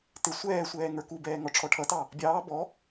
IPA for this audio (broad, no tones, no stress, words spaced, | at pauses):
tɪ sʷɛːsʷɛː ŋə˞kubɛː ŋɔʈ͡ʂʰɔʈʰʌtɑ | bʲɑː bɔ